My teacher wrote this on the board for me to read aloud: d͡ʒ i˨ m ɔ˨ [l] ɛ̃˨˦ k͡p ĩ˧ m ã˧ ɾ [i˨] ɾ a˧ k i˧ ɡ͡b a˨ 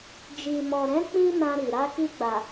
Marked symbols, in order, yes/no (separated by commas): no, yes